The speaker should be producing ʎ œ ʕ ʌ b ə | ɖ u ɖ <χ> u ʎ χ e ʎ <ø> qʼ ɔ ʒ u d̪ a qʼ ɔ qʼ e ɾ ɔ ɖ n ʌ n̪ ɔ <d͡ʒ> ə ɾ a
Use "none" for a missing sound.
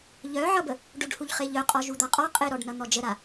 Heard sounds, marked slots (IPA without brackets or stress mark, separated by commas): h, œ, d͡ʒ